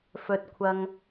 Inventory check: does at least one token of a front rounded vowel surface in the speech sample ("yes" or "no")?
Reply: no